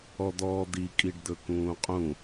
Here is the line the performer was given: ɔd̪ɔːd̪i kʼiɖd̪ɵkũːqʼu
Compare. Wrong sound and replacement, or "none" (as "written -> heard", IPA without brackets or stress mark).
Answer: u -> ũ